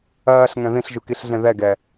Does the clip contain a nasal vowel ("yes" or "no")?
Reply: yes